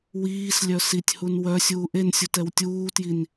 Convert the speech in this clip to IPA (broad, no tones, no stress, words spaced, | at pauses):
wiːs lʲœsitʲhun wœ sʲuːʔensʲu tɛwtʲuːtjin